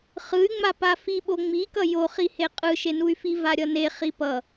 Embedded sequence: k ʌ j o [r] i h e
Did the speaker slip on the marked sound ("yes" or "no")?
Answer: yes